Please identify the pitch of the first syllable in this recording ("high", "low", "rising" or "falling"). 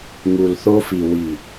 low